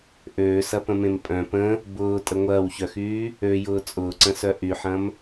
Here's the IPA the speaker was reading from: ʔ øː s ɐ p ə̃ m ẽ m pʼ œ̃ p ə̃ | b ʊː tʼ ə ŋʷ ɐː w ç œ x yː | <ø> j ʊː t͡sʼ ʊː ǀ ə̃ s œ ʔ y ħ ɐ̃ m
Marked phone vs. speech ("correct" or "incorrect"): correct